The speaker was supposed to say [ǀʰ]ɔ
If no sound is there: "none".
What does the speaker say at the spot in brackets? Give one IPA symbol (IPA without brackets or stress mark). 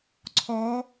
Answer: ǀʰ